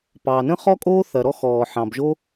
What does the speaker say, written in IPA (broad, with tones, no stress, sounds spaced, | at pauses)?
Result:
p ɑ˩ n ə̃˥ χ ɔ˥ kʼ oː˥ θ ɐ˩ ɾ ɔ˥ x ɔː˩ ħ ɑ̃˩ b ʒ o˥